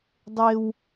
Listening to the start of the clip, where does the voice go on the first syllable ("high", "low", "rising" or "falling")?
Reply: high